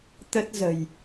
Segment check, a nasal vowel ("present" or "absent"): absent